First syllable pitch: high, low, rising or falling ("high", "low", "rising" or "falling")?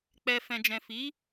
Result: low